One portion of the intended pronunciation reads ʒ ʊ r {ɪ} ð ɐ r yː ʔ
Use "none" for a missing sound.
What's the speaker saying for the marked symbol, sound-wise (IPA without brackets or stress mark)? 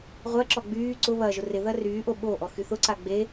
ɪ